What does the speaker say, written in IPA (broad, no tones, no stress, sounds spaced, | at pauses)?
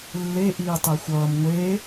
lː e ʔ iː tˤ e xʷ ʌː m ŋʷ e